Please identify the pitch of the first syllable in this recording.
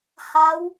rising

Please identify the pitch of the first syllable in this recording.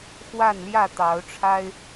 falling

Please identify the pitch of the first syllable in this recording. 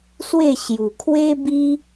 falling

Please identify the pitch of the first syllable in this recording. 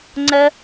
high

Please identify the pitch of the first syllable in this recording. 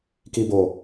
low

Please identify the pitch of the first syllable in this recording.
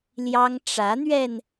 high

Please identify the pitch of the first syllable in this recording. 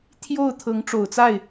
falling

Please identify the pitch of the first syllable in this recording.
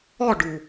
falling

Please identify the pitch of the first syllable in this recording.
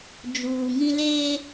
low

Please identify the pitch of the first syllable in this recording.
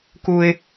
high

